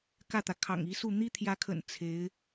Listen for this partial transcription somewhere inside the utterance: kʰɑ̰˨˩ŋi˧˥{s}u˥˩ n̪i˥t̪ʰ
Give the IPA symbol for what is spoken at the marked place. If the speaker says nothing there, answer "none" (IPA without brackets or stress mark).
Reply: s